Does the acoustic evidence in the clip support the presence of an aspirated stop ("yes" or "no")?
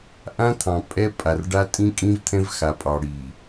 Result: yes